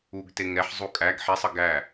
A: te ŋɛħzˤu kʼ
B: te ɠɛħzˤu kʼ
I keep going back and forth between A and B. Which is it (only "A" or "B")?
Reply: A